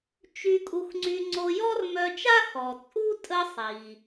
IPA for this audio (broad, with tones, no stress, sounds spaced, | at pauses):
t͡ʃ y˧ kʼ u˧ x ŋ͡ǀ y˧ ŋ͡ǀ o˧ j ɔ˥ r m œ˧ t͡ʃ a˥ x ɔ˩ t͡sʼ u˥ tʼ ə˧ sˤ i˩